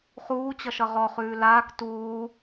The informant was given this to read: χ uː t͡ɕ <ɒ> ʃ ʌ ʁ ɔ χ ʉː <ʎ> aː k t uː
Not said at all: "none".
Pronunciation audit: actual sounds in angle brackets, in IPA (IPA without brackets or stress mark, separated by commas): ʌ, l